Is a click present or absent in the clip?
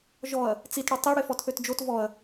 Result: absent